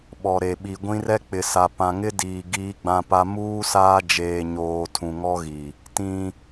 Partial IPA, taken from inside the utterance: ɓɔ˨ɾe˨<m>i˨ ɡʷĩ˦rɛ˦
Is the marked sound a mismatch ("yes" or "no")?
yes